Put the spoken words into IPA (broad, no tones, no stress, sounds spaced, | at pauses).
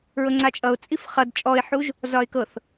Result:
ɹ ɤ ŋ͡ǀ a t͡ʃʼ ʌ ʊ̯ t͡sʼ i f χ ʌ d t͡ʃʼ ɔ ɪ̯ ħ u ʒ | z ɒ ɪ̯ k ɤ θ